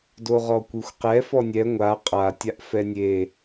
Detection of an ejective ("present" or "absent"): present